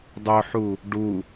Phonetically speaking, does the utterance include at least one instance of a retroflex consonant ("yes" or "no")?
yes